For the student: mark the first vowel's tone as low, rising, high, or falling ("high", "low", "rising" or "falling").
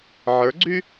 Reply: rising